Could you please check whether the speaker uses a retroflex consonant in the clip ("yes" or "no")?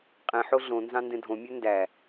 no